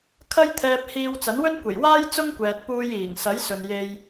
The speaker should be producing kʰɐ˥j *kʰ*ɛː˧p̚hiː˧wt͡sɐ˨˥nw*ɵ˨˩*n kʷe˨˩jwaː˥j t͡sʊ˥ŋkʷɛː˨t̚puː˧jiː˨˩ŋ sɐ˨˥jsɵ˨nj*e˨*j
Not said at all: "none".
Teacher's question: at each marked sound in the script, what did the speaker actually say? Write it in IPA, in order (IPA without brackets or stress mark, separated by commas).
t̪ʰ, ɵ˥, e˧